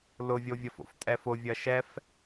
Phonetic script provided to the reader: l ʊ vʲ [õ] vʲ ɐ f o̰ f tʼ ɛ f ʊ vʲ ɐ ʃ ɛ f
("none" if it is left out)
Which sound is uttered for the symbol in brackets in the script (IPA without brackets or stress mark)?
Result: o